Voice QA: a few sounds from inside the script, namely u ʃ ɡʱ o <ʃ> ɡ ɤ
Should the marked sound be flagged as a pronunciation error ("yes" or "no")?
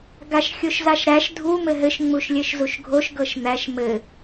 no